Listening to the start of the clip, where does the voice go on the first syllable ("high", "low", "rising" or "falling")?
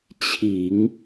low